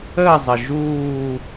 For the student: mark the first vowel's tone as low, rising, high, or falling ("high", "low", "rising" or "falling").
falling